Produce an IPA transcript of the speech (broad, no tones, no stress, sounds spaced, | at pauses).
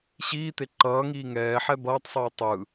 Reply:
ɕ iː t̪ e ǃ ʌː ŋ iː ŋ ɛː ħ ɛ b ʌː tˤ sˤ iː tˤ ɯ